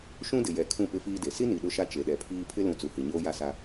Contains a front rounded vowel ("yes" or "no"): no